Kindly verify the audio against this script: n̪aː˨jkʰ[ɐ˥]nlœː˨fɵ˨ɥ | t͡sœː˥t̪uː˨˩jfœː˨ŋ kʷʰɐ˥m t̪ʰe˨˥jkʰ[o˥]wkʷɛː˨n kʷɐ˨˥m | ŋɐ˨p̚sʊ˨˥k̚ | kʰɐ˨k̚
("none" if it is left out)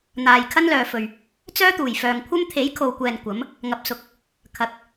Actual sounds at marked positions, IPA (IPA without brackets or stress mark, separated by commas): ɐ˥, o˨